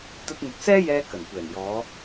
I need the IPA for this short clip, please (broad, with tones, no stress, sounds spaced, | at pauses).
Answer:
t̪ ɐ˧ t̚ n̪ ɵ˨ t̚ s ɛː˥ j ɛː˧ k ɐ˨˩ n kʷ ɛː˨˩ n j ɔː˨˧